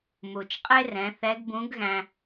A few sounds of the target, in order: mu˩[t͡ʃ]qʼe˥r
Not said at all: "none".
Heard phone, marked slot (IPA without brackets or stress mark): t͡ʃ